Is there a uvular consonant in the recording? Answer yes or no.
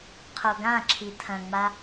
yes